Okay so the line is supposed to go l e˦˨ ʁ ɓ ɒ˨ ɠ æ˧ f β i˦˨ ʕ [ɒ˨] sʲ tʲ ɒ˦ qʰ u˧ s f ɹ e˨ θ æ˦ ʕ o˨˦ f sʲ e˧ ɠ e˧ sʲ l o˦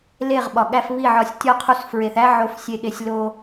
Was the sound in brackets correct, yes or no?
no